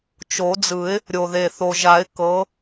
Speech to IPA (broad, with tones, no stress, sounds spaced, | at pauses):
t͡ʃ o˨˩˦ d͡z ɯ˨˩˦ ɪ̯ | ɾʲ o˨˩ ð e˨˩ θ o˨˩ ʒ a˨˩˦ ɪ̯ k ɤ˨˥